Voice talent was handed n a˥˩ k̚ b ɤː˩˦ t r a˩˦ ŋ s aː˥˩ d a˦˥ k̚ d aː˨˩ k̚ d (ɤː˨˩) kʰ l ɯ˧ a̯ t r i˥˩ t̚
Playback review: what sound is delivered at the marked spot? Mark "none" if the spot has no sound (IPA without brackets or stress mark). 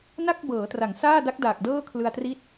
ɤː˥˩